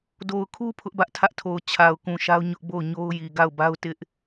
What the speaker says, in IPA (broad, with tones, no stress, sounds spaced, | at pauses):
d o˨ ʊ̯ kʰ u˦ pʰ ʊ˦ ʔ b ä˦ ʔ tʰ ä˦ ʔ tʰ o˨ ʊ̯ t͡ɕʰ a˨ ʊ̯ k ũ˨ ʃ a˦ ʊ̯ ɲ ʊ˦ ʔ b o˦˨ ʊ̯ ɲ o˦ ʊ̯ j i˨ ɡ a˦˨ ʊ̯ b a˦ ʊ̯ t ɪ˦ ʔ